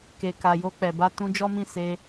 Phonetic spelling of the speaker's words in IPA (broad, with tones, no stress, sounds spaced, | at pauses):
k e˨ k a˨ j o˧ k͡p ɛ˨ b a˧ t ũ˧ d͡ʒ ɔ˦ m ĩ˦˨ s e˧